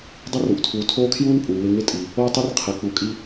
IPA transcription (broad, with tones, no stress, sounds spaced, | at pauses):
dˤ ɪ˦ r u˨ ʔ tʰ uː˨ tʰ oː˦ kʰ j uː˦ n pʼ uː˨ w ɪ˦ ŋ ɪ˦ tʼ i˨ | oː˦ tˤ i˦ r qʰ ɛ˨ k͡p u˨ kʼ i˦